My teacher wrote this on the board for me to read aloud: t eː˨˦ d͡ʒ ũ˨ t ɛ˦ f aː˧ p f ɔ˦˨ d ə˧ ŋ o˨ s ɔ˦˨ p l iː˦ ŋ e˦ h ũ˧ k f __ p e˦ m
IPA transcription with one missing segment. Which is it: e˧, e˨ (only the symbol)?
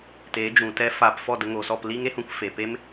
e˨